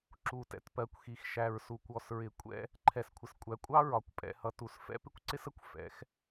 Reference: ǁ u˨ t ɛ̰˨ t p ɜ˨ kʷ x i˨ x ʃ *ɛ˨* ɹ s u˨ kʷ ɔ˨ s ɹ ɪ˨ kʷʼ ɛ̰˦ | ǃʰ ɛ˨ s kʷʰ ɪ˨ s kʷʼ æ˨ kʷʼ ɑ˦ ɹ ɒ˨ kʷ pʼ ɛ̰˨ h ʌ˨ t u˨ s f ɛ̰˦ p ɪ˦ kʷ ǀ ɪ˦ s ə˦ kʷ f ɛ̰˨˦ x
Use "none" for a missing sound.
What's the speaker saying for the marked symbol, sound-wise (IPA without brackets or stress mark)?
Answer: æ˨